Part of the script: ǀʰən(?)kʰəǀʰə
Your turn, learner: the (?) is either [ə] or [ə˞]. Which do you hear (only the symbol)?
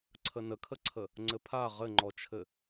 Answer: ə